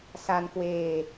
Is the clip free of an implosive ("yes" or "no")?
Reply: yes